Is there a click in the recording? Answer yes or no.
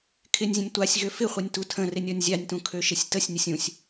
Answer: no